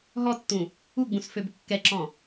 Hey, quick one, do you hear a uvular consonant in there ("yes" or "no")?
no